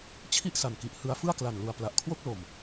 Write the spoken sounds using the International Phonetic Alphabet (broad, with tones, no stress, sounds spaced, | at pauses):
t͡ɕʰ i˥˩ ʔ s a˨˩ n k i˨˩ ʔ h ɯ˧ a̯ f ɯ˥˩ a̯ k l a˨˩ n l u˨˩ a̯ p l a˨˩ ʔ kʰ w o˥˩ k̚ l o˨˩ m